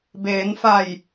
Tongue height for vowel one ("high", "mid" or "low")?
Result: mid